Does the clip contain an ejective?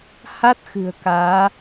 no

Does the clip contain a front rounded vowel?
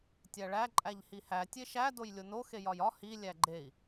no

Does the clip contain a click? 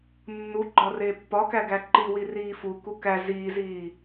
yes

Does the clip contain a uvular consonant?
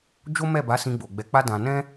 no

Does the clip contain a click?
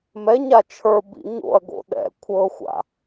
no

